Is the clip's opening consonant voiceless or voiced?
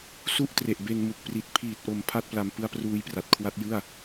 voiceless